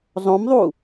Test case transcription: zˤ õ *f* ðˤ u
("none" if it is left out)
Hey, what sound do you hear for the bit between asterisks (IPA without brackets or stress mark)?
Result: m